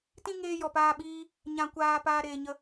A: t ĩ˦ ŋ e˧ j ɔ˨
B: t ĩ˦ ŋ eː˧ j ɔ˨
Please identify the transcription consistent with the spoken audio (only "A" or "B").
B